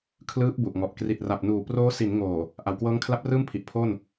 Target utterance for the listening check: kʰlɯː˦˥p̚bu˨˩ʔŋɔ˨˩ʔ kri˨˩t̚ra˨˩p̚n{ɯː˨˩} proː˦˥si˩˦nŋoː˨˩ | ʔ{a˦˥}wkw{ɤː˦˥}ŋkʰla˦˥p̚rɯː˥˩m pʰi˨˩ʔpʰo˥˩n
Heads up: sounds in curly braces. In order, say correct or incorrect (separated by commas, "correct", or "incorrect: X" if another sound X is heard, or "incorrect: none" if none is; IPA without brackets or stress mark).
incorrect: uː˨˩, incorrect: a˨˩, correct